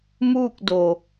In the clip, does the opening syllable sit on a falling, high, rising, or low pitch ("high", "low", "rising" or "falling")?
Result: falling